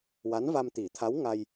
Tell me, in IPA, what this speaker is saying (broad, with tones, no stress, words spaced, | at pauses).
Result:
wa˧˥nva˧mt̪i˨˩˦t̪ʰa˧˥w ŋa˧j